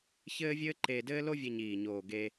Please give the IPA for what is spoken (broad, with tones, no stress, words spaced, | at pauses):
çɘː˥vʲɘː˥ǃeː˧dɘː˥ lo˥vʲe˧ɲiː˨˩ɲoː˨˩ ɡe˧